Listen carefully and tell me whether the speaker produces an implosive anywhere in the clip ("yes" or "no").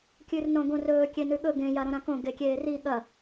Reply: yes